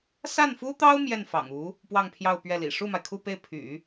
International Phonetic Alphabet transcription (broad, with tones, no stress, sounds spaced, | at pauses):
s a˥˩ n f u˥ t̪ ɑ˥ ʊ̯ m j ɛ˥˩ n f ɑ̰˨˩ ŋ u˧˥ | p w ɑ˥˧ ŋ pʰ j ɑ˥˧ ʊ̯ p ɥ ɛ˥˩ l ḭ˨˩ ʂ u˥˩ m a˩ ɪ̯ kʰ u˥˧ p e˥˩ ɪ̯ pʰ y̰˨˩˦